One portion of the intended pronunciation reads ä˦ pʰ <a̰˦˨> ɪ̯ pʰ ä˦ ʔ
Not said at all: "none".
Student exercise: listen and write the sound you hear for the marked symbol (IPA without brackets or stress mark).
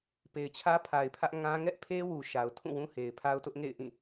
a˨